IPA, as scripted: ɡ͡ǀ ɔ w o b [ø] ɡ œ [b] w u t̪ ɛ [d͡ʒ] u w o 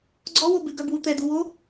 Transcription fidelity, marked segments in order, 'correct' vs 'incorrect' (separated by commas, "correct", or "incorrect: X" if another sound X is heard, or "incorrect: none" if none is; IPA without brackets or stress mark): incorrect: ʉ, correct, incorrect: d